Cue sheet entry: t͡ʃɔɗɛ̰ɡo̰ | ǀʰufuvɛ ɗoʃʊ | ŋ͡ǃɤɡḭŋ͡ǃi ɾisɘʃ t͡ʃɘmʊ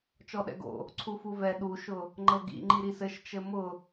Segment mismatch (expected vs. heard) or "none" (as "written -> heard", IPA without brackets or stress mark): o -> u